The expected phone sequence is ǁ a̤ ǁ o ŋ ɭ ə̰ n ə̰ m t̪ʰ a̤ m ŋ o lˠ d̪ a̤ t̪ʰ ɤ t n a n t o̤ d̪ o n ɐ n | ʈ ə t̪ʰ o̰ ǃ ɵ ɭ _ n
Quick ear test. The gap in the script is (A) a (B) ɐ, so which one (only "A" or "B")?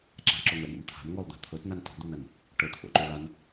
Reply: A